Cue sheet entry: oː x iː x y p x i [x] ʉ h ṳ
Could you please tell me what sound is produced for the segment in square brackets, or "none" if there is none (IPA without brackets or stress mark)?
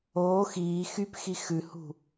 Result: x